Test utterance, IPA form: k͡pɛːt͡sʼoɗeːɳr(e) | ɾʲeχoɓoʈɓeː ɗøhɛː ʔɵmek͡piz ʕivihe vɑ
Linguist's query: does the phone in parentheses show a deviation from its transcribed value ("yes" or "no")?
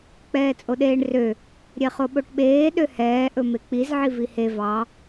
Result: yes